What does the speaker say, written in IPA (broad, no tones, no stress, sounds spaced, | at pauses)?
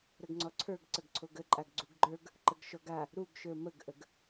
ɾ ə ɡ ŋ͡ǀ ɔ ǀʰ ə˞ ɡ ǀ ə ɡ ǀʰ o ɡ ə ǃʼ a ɡ ɡ͡ǀ u ɡ ɡ͡ǃ ə˞ ɡ | ǃ ə ɡ ʃ ɔ ɡ a | ɾ u ɡ ʃ ə˞ m ə ɡ ʔ ə ɡ